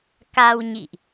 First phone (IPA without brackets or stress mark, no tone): k